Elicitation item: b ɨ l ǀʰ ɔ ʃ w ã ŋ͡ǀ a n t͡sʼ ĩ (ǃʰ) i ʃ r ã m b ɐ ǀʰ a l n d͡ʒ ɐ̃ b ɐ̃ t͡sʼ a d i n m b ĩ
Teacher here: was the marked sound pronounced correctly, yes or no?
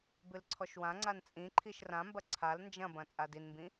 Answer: yes